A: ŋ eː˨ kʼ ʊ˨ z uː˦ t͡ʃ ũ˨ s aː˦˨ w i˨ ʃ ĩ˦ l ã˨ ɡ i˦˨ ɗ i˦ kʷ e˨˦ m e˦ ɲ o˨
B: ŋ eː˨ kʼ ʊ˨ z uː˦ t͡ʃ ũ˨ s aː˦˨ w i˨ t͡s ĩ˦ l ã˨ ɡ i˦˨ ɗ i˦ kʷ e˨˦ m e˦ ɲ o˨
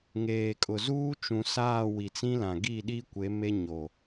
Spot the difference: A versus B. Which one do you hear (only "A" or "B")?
B